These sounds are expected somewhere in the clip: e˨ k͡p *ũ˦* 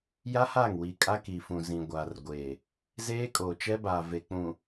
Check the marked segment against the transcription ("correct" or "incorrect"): incorrect